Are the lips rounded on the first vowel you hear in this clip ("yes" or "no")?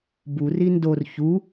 yes